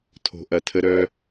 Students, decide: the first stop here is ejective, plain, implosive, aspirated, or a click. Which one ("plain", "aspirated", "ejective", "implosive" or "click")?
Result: aspirated